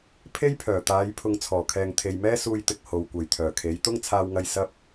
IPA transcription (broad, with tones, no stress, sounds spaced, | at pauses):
pʰ e˥ j pʰ œː˨˩ t̪ aː˨˧ j pʰ ʊ˨ ŋ t͡sʰ ɔː˨˩ kʰ ɛː˨ ŋ t̪ʰ e˨ j m ɛː˥ s uː˧ j t̪ ɪ˨ k̚ h o˨ w kʷ ɐ˨ j t̪ʰ œː˨˩ kʰ e˨˥ j t̪ ʊ˥ ŋ t͡sʰ aː˧ w ŋ ɐ˧ j s ɐ˥ p̚